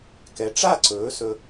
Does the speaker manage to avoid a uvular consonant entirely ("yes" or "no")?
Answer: yes